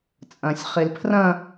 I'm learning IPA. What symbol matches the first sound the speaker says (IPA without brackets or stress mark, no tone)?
t͡sʼ